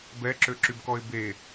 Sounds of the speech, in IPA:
b ɛ ǁ ø ǁ y b k ɔ ɪ̯ b e

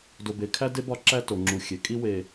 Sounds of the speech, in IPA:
d o˨ b e˨ kʰ æ˦ d e˦ b ɒ˦ ǁ æ˦ t o˨ ŋ͡ǁ u˨ xʲ e˨ kʼ i˦ w e˨

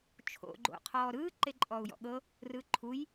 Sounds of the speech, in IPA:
t͡ʃʰ o̰ ɡ͡ǃ o̰ qʰ ɔː ɾ ɯː ǃ e ǃʼ ɔː u̯ j ɔ̰ ɠ ɤ | r ɯ ǃʰ u j

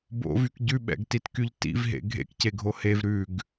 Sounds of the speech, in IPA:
b o̰ v y k ɟ ʉ ɓ ɛ̰ ɡ t i t k y ʎ t ḭ v ɦ ḛ ɡʱ ḛ k c e ɡʱ o h e v ɾ ʉ ɡ

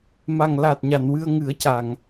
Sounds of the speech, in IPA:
m a˨˩ ŋ l a˨˩ t̚ ɲ a˨˩˨ n w ɨ˧ ə̯ ŋ ɨ˨˩˦ ə̯ c a˨˩˨ ŋ

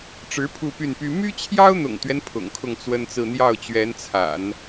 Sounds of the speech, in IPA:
ʈ͡ʂ ɻ̩˧˥ pʰ u˥˧ p y˥˩ n p y˥ m y˥ t͡ɕʰ j ɑ˥ ʊ̯ n̪ ʊ̰˨˩ ŋ t̪ ɥ ɛ˦ n pʰ ʊ̰˨˩ ŋ kʰ ʊ˥˩ ŋ t͡s w ə˥ n t͡s ɹ̩˥˧ n̪ j ɑ˥˩ ʊ̯ t͡ɕ ɥ ɛ˧˥ n t͡sʰ a̰˨˩˦ n

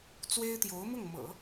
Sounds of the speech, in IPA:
t͡s w e˥ ɪ̯ t̪ j o˧˥ ʊ̯ m ʊ˥˩ ŋ m ɤ̰˨˩˦

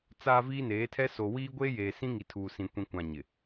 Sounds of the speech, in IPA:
t͡s aː˨ v iː˦ n eː˨˦ tʰ ɛ˦ s o˨ w iː˦ ɡʷ eː˦ j eː˨ s ĩ˦ ŋ i˨ tʰ uː˨ s ĩ˨ kʷ ĩ˨ kʷ ã˨ ɲ ɪ˨

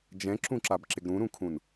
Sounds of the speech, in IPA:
d͡ʒ ɛ̃ ǁ ũ ǁ a b ǁ ɪ ɡ ɾ ũ ɾ ũ kʰ ũ n

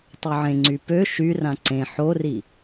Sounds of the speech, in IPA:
tˤ ø ʕ ẽ ŋ͡ǀ y p ø ʃ y r ã ǀ ẽ ħ o r i

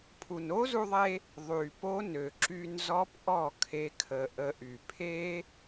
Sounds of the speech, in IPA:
pʰ u˨ n o˦ z u˧ ðˤ e˧ | ðˤ y˨ p o˦ n ø˨ ǁ y˧ n z ɔ˦ p ʔ ɔ˦˨ kʰ e˦ kʰ ə˧ ʔ ə˧ ʔ y˨ pʰ e˦

